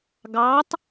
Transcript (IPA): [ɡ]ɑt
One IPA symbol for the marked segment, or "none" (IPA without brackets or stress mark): ɡ